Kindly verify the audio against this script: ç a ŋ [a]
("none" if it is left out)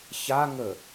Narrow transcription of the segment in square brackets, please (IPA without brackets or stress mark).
ə